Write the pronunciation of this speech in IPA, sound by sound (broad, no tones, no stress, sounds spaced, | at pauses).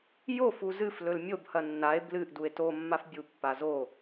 j o f u z ɨ f l ɵ l mʲ o b h ɐ nː a e̯ b l ɨ ʔ d u e̯ t o mː a f bʲ u pː a z o